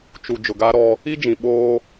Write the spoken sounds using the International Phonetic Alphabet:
t͡ʃ u˨ d͡ʒ ʊ˨ ɡ a˦ ɾ ɔ˦ | i˦ d͡ʒ ĩ˨ ɓ oː˦

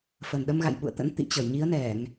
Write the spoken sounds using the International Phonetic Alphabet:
f ə˨˩ n ɗ ə˧ m ɣ a̰˧˨ j ɓ ṵ˧˨ ə̯ t̪ ə̰˧˥ n t̪ ḭ˧˨ t͡ɕ ə˧˩ j ɲ i˨˦ ə̯ n ɛ˧˩˨ ŋ

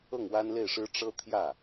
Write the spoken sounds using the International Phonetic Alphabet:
ɤ˥˩ ŋ w a˥ n l e˥˩ ɪ̯ ʂ ɻ̩˥ ʈ͡ʂ ɤ˥ t̪ʰ j ä˥˩

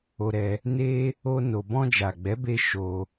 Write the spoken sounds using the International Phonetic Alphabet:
o˧ ɾ ɛ˧ | n e˦ | o˦ n o˧ b ɔ̃˧ d͡ʒ a˨ ɡ͡b ɛ˨˦ b e˧ ʃ o˧

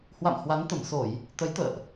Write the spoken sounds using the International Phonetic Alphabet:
h w a̰˧˨ m h w a˨˦ n t̪ ə˧˩ m s o˧˩˨ j | t̪ ə˨˦ j t̪ ə̰ː˧˨ ʔ

